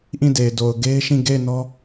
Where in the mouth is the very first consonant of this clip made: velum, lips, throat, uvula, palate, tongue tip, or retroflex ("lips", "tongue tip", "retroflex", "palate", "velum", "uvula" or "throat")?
throat